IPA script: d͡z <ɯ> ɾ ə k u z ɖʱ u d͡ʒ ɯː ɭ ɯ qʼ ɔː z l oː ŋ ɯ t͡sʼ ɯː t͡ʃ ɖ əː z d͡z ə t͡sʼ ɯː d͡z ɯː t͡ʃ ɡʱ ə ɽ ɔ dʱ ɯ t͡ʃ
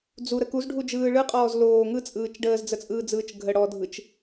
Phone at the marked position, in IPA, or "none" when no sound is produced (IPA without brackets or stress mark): u